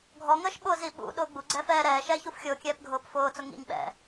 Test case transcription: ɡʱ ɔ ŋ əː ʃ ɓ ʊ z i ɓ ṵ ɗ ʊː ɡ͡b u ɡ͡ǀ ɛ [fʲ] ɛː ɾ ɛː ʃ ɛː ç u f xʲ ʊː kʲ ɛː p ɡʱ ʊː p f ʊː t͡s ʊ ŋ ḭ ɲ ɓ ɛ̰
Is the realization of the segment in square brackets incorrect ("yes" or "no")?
yes